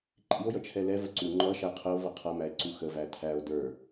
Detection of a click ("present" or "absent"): present